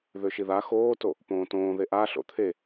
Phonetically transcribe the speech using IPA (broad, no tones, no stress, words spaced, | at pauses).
ðøʃiða xoːto | põːtõː ðeʔa ɬo̰t̪ʰe